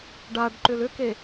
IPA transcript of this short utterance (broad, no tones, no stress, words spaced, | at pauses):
ɖaɖǃʏl ʏke